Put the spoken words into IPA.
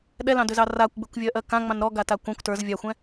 ɗɛlɑ̃dʏzɑ rakʷɡ͡bʏkʷvʲɜʔɜ kã ŋ͡mɑ̃nɾɔ ɡatakʷɑ̃kʷ tə˞z vʲaxʷɛ̃

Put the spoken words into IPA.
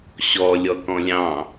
ɕɔ lʲɔkɔ̃lʲɑ̃

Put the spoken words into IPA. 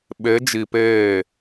ɓe˨˦d͡ʒi˨peː˦˨

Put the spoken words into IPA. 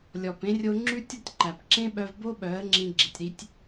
lʲɔ˨pẽ˦rʲo˦ ŋ͡ǁʉ˦tʲɔ˦tʲǃæ˨p ǁẽ˦ɓœ˧vbo˦ ɓœ˨˦ə̯ŋ͡ǁĩ˧ ɡ͡ǁi˨tʲɾi˦tʲ

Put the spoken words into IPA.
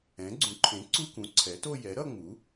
ɛ̃˩˥ɡ͡ǀũ˩˥ǃʰẽ˩˥ ǀu˥˧kũ˩˥ǀʰɛ˩˥to˥˧ jɛ˩˥ɾʌ˥˧ŋ͡mu˩˥

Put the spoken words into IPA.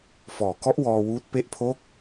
fɔː˨˩kɔ˦˥ʔwɔː˧ wuː˦˥t̚ pe˦˥ʔpʰo˦˥k̚

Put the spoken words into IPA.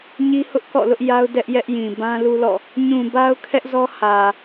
ɲi˦hʊ˦ʔ kɔ̰˦˨lʊ˦ʔja˦ʊ̯ dɛ˦ʔjɛ˦ʔjĩ˨ bã˦lu˦lɔ̰˦˨ | ɲũ˨ ba˦ʊ̯kʰɛ˦ʔzɔ˦ hä˨

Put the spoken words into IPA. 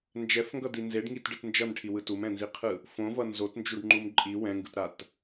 nd͡ʒɛfŋɡʌdi nzeɖŋitɖɯt nd͡ʒʌnʈʰiwɯ tumɛ̃nziqʰɯ | fõvʌ nzotnd͡ʒuɖŋ͡ǃum ǃʼi wɛ̃ŋɡɯtɾat

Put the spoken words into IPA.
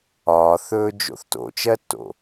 ɒːθɵːd͡ʒo̰θ to̰t͡ʃɜtːo̰

